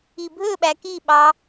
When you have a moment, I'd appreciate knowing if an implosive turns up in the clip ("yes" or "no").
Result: yes